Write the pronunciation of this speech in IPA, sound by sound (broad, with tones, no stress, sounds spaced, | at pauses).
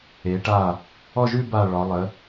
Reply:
e˩˧ ʈ a˧˩ | ɔ˥˧ ʒ ʉ˥˧ b a˧˩ ɭ ɒ˩˧ lˠ ə˩˧